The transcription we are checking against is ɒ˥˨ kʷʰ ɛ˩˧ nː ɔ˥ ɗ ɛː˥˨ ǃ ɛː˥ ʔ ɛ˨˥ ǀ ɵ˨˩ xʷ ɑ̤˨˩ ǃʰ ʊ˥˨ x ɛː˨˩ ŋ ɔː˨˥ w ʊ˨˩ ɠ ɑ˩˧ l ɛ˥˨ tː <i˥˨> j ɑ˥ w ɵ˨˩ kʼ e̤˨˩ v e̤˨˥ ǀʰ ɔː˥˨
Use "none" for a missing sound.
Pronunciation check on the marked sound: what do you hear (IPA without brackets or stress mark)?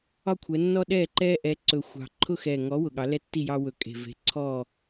i˥˨